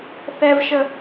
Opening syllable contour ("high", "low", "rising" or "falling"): high